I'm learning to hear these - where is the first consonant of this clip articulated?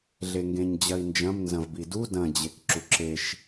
tongue tip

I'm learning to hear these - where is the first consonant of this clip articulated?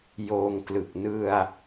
palate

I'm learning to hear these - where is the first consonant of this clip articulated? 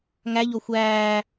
velum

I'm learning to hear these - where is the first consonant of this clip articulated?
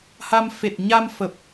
throat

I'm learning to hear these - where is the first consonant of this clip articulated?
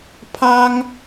lips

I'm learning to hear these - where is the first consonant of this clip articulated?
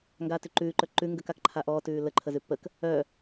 velum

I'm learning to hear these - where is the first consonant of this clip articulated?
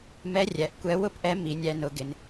lips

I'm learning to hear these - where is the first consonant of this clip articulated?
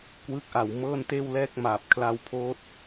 velum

